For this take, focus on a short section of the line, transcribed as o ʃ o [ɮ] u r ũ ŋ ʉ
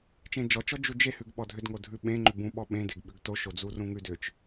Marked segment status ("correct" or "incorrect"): incorrect